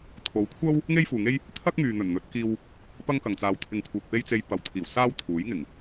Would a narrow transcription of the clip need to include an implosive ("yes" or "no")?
no